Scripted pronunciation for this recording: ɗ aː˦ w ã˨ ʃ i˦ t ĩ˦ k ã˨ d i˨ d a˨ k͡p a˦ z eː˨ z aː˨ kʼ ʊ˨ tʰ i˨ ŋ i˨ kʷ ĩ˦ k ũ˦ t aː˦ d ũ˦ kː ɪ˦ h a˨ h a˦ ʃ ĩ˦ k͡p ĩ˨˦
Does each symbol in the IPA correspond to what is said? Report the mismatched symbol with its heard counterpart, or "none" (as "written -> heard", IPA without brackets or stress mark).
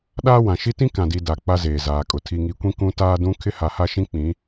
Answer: kː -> kʰ